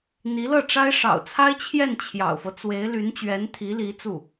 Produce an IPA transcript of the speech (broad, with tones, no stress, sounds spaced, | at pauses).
n̪ i˧˥ l ɤ˥˩ ʈ͡ʂ a˥ ɪ̯ ʂ ɑ̰˨˩ ʊ̯ t͡sʰ a˥ ɪ̯ t͡ɕʰ j ɛ˥˩ n t͡ɕʰ j ɑ̰˨˩ ʊ̯ f ɤ˦ t͡s w e˧˥ ɪ̯ l y˧˥ n t͡ɕ ɥ ɛ˧˥ n t̪ʰ i˧˥ l i˧˥ t͡s u˥˩